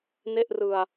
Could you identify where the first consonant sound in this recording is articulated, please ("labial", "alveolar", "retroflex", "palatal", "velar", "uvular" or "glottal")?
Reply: alveolar